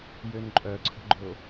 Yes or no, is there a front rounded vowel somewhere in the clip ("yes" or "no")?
yes